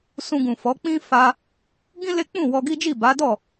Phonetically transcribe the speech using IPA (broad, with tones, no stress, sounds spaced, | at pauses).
s ũ˧ ɡ ũ˨ f ɔ˨˦ k͡p ĩ˦ f a˧ | ɡ ĩ˦ l e˦ k͡p ũ˦˨ w ɔ˧ ɡ i˦ d͡ʒ i˦˨ b a˨˦ d ɔ˦˨